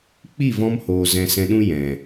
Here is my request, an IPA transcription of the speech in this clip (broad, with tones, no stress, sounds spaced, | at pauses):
k͡p i˦˨ v ɔ̃˧ m h oː˨ z ɛ̃˧ s ɛ̃˧ ɗ ũ˦ j ɛ̃˨